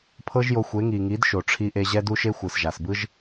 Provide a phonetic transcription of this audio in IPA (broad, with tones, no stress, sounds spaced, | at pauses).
pʰ ɤ˦ ʒ j o˧ xʷ e˨˦ ŋ i˨ ŋ i˨˦ d ʃ o˨ ʈ͡ʂʰ i˧ ʔ e˧ ʑ ɛ˦ d u˦ ʃ e˦ xʷ ɯ˨ s ʒ a˨ s b ɯ˦ ʒ